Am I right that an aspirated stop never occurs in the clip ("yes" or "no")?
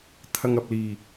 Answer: no